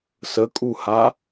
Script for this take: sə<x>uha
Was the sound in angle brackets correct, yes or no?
no